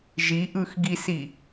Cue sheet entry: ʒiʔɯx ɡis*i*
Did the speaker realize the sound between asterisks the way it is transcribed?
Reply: yes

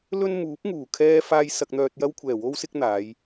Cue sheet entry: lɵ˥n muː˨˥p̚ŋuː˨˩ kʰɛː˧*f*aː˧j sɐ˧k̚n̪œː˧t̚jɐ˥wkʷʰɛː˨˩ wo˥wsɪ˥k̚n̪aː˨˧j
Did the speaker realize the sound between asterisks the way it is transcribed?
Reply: yes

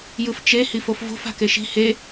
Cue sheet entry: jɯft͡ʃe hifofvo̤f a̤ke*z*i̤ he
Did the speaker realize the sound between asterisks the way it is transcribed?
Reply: no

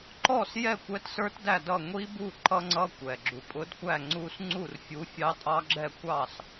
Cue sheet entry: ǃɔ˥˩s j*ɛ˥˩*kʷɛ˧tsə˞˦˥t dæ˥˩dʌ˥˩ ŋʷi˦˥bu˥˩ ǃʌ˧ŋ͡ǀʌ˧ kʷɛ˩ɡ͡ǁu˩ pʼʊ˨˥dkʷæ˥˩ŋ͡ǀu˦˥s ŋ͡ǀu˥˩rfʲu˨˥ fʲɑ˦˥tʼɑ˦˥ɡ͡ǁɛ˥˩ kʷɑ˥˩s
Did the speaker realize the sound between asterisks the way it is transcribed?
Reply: yes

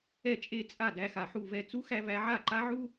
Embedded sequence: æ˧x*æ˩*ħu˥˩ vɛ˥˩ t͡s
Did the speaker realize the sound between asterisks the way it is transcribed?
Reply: no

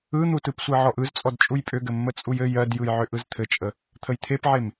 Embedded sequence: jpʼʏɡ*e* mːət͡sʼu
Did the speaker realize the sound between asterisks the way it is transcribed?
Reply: no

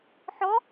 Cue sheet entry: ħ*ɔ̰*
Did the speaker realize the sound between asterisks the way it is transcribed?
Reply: no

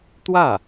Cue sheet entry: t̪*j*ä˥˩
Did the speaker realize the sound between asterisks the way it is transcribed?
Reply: no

